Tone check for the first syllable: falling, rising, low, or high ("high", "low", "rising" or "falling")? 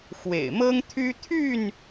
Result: low